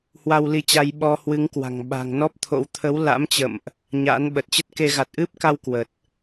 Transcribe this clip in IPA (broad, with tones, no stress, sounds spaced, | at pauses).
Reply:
h w a˧ w l i˧ t͡ɕ a˧ j ɓ ɔ˧ h w ɨ˨˦ ŋ k w a̤˨˩ ŋ ɓ a̤˨˩ ŋ n ɔ˦˥ p̚ t̪ʰ o̰˧˥ w t̪ʰ ə˨˦ w l a̰˧˥ m t͡ɕ ə̰˧˨ m ʔ | ɲ a̰˧˥ n ɓ ə˨˩ t̚ t͡ɕ ə˦˥ t̚ k e˧ ɣ a˨˩ t̚ ʔ ɨ˦˥ p̚ k a˧ w k w ə˨˩ t̚